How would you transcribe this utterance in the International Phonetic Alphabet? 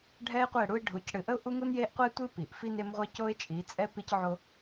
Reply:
ɖʱ ɛ˦ ɪ̯ qʷ ɛ˦˨ ɽ u˦ ɪ̯ ɖʱ u˨˦ c ɽ ɨ˨ ʔ ə˦ ʊ̯ ʔ u˦ ŋ u˦ n j e˦ ʔ qʷ ɛ˦ tʷ ɨ˦ p i˨ ʔ f i˦ n e˦ m ʁʷ i˦ c o˦ ɪ̯ t͡ʃʼ i˨˦ t͡sʼ ɛ˦ p i˦ c ʕ o˦

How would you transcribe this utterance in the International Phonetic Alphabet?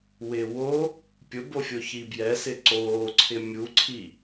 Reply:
w ɪ w o | pʲ ʊ b o fʲ o ç i b j ɛ s ɪ ǀ oː ǀʰ ɪ mʲ u ǀʰ i

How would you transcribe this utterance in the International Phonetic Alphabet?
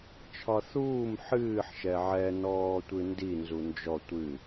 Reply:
t͡ʃʰ ɒ θ uː m ħ ɨː ħ ʃ ɛ ʕ ɛ n ɔː tʷ ɨ n d i n z u n d͡ʒ ɔ tʷ ɨ

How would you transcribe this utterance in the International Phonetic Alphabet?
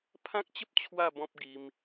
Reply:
pʰ ã˦ k̚ t͡ɕ ə˦ p̚ t͡ɕʰ w a˥˧ b ɔ̃˦ p̚ ɡ i˧ m

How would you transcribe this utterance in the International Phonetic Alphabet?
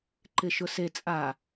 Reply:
ǃ ɪ ʃ ʊ s e t͡sʼ a

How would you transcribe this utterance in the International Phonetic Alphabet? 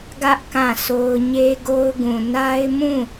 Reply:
ɡ ä˦ ʔ k ã˦˨ sʰ o˦ ʊ̯ ɲ e˦ ɡ o˦ ʊ̯ ɡ ũ˨ n a˦ ɪ̯ m ũ˦˨

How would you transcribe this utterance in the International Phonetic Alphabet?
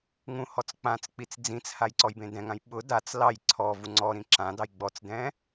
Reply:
ŋ ũ h ɔ t͡s k͡p ã t͡s k͡p i t͡s d͡z ĩ t͡s h a j ǀ ɔ j b ẽ d ɛ̃ ŋ ã j ɓ ʊ d a t͡s l ɑ j ǀʰ ɔ v u ŋ͡ǀ ɔ ɾ ĩ ǁ ã d ɑ j ɡ͡b ɔ t͡s d ɛ̃

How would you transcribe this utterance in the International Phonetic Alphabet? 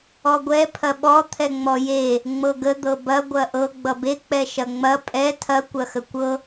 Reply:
ɔ ɡʷ ɛ pʰ ɐ ɓ ɔ t̪ʰ ɛ ŋ͡m ɔ j e | ŋ͡m ɤ ɡ ə d̪ ɤ b ɐ ɡʷ ɐ ʔ ɤ ɡ͡b ʌ b e k͡p ɛ ʃ ɐ ŋ͡m ɐ pʼ ɛ tʰ ɐ kʷ ɐ x ə kʷ ɤ

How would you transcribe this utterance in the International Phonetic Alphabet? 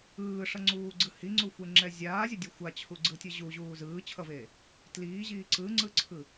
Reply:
ɯː ʂ ʌ ŋ͡ǀ uː ɡ͡ǀ ɯ h i ŋ͡ǀ u xʷ e ŋ͡ǁ ɛ zʲ aː zʲ ʌ dʲ ɯ xʷ a t͡ɕʰ u ɡ͡ǀ ɯ tʲ ɯ ʑ u ʑ uː z ɯː t͡ɕʰ ʌ v eː | t l iː ʑ iː ǀ ɯ ŋ͡ǀ ɯ ǀʰ ɯ

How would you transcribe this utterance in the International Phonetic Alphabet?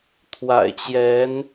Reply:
t̪ʰ w a̰˨˩ ɪ̯ t͡ɕ j ɛ˧˥ n

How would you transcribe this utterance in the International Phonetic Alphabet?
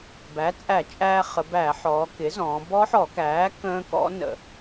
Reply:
b æ˩˥ t͡sʼ æ˧˩˧ t͡ʃʼ æː˧ χ ə˩˧ b æ˧˩˧ ħ ɔː˩˧ k ɪ˩˥ z ɔ̃ː˩˧ b ɔ˦˥ ħ ɔ˧˩˧ k æː˩˥ k ə̃ː˦˥ k ɔ̰˦˥ n ə̰˧˩˧

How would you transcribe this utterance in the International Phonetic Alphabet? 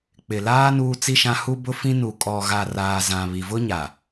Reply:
k͡p ɪ˨ l aː˦ n uː˦ t͡s i˦ ʃ ã˦ h u˦ b ʊ˦ f ĩ˦ n u˨ kʼ ɔ˨ ɣ a˨ r aː˨ z ã˨ β i˨ v ʊ˦ ɲ a˨

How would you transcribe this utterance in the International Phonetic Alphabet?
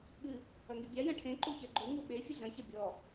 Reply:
ɠ ɨ | ɐ ŋ i bʲ a j ɐ̃ ʈʰ ẽ ǃ u ç ɛ ɡ͡ǃ u ŋ u ɓ e fʲ ɨ ɮ ɐ̃ ç ɐ bʲ ɔ

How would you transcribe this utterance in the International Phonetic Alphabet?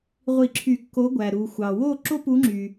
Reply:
ʁʷ i˧˩˧ ǁʰ y˧˩˧ kː o˨˥ ɡʷ æ˩ ɾ u˩ xʷ ɑ˩ w o˥˨ ǁ o˥ p u˨˥ ŋ͡ǁ y˩

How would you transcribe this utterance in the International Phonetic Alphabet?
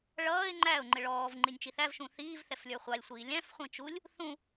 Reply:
ɭ ʌː ɪ̯ ŋ͡ǃ æ ʊ̯ ŋ͡ǃ ɪ ɭ ɔː v ŋ͡ǃ i nʲ t͡ʃ i θ æ v ʃ ũ θ iː v θ ɛ f lʲ ə˞ χʷ ɑ lʲ sʷ iː lʲ æ̃ f χʷ ĩ t͡ʃ u lʲ | θ ũ

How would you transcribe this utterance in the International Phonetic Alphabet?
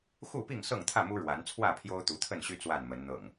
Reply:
x u˥˨ p i˥˨ ŋ s ɤ˥˨ ŋ t̪ʰ ä˥˨ m u˦ ɻ w a˨˦ n t͡sʰ w ä˥˨ pʰ j o˦ ʊ̯ t̪ u˨˦ t̪ʰ ə˥˨ n ɕ y˦ t͡s w a˥˨ n m ə˨˦ n n̪ ɤ̰˨˩ ŋ

